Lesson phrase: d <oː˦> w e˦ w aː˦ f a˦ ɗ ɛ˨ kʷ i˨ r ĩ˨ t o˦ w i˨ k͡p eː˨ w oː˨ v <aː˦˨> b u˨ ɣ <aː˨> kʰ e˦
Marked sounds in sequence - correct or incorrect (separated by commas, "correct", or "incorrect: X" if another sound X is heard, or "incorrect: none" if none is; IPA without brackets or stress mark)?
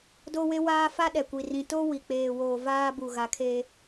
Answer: incorrect: o˦, incorrect: aː˦, incorrect: a˨